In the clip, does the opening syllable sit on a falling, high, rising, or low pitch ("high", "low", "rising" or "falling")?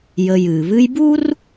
low